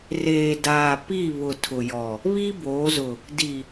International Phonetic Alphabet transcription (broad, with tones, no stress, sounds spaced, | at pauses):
r eː˨ d aː˨ p i˦˨ β ʊ˨ tʰ ʊ˨ j ɔ˨ | β i˦ b oː˨˦ z ʊ˨ | d i˨